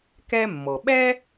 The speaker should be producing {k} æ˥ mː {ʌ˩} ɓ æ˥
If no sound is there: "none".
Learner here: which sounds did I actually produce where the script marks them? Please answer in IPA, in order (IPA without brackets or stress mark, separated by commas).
k, ɔ˩